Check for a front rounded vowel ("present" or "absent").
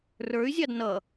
present